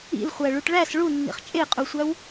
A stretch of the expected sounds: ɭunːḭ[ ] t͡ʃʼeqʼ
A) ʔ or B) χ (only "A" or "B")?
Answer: B